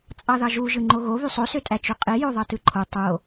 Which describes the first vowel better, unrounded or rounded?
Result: unrounded